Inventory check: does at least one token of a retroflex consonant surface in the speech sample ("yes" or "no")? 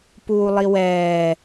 no